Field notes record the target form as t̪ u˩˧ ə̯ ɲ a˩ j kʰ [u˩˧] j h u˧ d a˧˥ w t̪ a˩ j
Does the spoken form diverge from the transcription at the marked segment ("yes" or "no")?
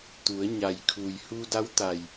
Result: yes